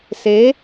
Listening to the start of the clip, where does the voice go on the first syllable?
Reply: rising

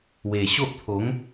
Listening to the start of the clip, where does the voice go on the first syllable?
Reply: low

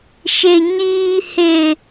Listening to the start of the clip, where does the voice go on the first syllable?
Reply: high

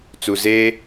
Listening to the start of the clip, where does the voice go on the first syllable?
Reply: low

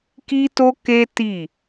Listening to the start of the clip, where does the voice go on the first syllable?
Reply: high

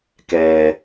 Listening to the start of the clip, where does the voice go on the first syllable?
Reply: low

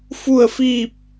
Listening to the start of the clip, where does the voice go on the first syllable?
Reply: falling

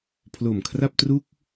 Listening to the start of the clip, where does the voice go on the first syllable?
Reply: low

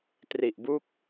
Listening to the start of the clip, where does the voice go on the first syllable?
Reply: low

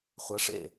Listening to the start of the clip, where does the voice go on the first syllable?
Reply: rising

